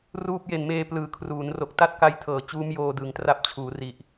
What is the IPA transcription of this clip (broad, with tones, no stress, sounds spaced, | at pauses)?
r uː˥˩ p̚ j e˨˩ n m eː˧ p l ɯː˩˦ kʰ r uː˩˦ n r o˨˩ k̚ t a˥˩ t̚ k a˦˥ j tʰ ɤː˨˩ t͡ɕ uː˦˥ m j oː˧ d ɯː˩˦ ŋ t r a˦˥ p̚ t͡ɕʰ uː˩˦ r i˨˩ ʔ